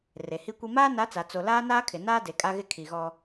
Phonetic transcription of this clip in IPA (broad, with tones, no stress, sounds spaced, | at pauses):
r e˨ h i˦ kʷ i˦ m aː˦ n a˨˦ t͡s a˨ t͡s o˨ l aː˦ n aː˦ kʰ ɪ˨ n aː˦ d e˨ kʼ a˦ ɣ ɪ˦ kʰ i˨ ɣ ɔ˦